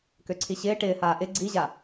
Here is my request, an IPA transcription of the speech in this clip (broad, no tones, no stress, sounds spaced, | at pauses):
k ø ǀʰ i ɕ ɪː ʈ ɪː h aː ʔ ɪ ɡ͡ǀ i ʑ a